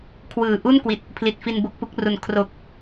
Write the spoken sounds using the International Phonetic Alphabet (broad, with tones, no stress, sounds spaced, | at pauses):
kʰ w ɯː˨˩ ʔ u˥˩ n k w i˨˩ t̚ | pʰ l i˨˩ t̚ f i˧ n b o˦˥ k̚ p u˦˥ k̚ r u˨˩ n kʰ r o˨˩ k̚